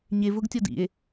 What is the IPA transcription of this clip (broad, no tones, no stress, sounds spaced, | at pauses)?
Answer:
ɲ e v ʊ ɡ tʲ ɔ d ḭ e̯